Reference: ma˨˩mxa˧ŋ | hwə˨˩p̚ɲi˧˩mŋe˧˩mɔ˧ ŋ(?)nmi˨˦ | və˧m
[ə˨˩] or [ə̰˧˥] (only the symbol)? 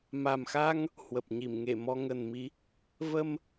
ə˨˩